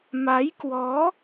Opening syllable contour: rising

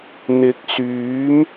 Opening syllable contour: rising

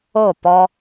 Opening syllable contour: falling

